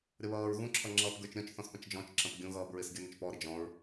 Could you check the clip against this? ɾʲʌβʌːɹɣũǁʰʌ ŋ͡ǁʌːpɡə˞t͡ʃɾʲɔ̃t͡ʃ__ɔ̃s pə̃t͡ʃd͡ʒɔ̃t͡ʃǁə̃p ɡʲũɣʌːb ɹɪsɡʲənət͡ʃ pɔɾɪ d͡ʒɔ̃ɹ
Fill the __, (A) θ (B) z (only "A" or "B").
A